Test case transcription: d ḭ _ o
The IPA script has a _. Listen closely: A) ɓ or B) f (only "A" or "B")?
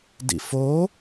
B